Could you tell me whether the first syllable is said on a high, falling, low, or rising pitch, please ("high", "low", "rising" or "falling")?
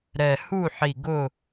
low